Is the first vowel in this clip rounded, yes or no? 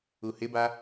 yes